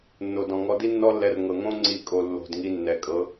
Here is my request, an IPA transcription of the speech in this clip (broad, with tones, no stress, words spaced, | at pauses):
nːo˨dɔ̃˨ ŋɔ˧ di˦nːɔ˦lːɛ˧r ŋɤ˨ŋõ˦ ŋ͡ǀi˦˨kʼo˧ lːo̤˨d ŋi˧nːɛ˨ kʼɤ˨˦